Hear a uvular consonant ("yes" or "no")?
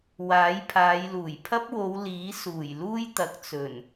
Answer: no